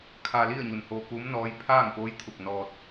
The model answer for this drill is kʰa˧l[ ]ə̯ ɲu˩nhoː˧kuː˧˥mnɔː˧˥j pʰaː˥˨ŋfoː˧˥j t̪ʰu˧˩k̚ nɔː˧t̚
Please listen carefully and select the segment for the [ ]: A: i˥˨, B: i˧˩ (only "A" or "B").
A